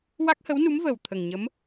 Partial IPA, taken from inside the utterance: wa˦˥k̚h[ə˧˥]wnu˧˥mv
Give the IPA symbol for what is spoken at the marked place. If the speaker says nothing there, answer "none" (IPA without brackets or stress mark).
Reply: ə˧˥